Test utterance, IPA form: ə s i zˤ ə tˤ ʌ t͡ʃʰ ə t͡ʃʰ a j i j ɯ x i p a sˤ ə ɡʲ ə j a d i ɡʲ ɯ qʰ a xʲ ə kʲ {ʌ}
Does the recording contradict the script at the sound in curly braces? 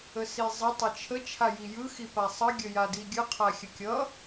no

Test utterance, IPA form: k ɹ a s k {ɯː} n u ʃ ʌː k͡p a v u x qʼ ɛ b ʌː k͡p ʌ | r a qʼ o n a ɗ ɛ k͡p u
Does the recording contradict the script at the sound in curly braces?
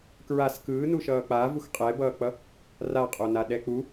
no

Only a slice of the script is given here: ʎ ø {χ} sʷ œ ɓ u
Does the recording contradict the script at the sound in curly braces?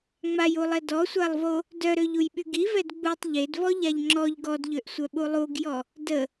yes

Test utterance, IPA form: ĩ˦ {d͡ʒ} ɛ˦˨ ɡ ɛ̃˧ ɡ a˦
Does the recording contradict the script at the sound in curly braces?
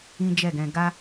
no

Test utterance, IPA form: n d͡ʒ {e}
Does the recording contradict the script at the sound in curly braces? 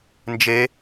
no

